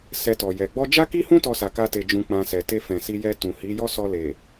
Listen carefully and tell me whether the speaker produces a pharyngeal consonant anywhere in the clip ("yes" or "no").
no